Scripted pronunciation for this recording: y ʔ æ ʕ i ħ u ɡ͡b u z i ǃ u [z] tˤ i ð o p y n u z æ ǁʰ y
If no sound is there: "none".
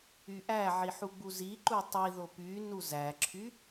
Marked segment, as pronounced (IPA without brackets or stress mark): none